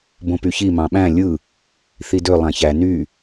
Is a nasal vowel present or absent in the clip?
present